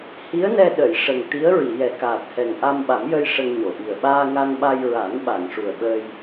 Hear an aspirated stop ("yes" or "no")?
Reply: no